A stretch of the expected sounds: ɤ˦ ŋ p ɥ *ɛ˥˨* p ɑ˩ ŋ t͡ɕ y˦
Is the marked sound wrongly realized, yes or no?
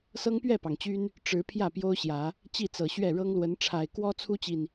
no